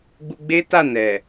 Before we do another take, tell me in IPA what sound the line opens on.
ɡ͡b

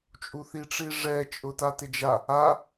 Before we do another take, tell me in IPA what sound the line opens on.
t͡ʃʼ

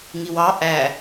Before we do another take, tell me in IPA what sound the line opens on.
ŋ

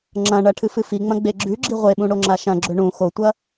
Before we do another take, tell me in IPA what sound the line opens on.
ŋ͡ǁ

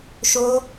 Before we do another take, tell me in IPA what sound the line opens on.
ʃ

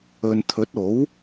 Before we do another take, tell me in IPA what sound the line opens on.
ɵ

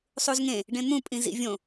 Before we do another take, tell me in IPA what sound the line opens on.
sˤ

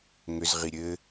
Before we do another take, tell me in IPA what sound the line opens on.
ŋ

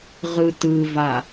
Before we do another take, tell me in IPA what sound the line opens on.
ʁ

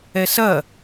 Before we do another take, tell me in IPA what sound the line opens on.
ɛ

